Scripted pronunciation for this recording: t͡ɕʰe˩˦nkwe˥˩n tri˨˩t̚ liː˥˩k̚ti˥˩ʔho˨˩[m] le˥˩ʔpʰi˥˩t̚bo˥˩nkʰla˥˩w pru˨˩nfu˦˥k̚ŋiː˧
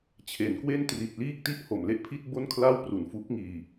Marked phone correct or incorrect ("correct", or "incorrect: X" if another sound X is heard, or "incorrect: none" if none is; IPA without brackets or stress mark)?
correct